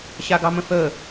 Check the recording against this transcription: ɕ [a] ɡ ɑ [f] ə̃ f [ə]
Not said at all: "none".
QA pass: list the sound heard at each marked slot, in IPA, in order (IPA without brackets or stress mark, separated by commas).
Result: a, m, ə